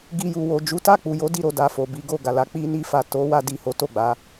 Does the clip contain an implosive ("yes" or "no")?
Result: no